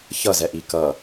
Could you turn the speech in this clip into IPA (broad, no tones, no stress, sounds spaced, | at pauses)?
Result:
ç ʌ z ɛ ʔ i k ʌ